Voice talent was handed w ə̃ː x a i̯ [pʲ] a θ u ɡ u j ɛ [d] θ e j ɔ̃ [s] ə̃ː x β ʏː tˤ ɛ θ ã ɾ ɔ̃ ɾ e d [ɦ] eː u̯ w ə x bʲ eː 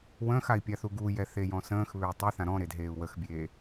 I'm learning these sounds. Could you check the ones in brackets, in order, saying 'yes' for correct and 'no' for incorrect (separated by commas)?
yes, no, yes, yes